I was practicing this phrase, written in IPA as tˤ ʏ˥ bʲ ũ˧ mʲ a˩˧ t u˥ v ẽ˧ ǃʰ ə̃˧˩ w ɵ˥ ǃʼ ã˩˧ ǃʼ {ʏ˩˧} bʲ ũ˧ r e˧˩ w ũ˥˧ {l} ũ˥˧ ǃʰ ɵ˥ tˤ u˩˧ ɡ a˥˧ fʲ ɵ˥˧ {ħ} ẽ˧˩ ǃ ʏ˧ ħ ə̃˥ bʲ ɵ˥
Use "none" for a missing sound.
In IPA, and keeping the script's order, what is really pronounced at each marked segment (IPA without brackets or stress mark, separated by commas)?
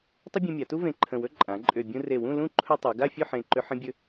ʏ˧˩, l, ħ